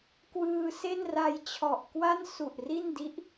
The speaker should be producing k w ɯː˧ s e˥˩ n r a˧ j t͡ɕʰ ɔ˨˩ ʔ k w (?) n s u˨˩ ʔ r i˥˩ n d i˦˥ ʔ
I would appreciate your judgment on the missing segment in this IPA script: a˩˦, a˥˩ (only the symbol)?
a˥˩